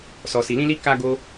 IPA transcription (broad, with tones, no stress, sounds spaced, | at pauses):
s ɔ˨ s i˨ l ĩ˧ l i˧ k a˦ ɡ o˦